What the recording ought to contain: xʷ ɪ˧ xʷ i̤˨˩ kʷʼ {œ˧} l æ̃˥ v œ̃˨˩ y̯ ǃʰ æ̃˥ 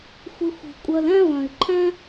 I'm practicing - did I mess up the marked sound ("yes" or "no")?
no